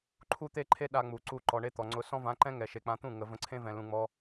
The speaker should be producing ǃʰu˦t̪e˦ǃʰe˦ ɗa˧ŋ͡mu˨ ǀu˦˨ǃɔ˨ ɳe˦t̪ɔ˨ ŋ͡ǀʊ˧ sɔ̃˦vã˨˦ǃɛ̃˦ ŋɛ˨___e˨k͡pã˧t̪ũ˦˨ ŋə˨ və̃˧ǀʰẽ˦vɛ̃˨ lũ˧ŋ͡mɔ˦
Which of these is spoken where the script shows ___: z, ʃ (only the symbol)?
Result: ʃ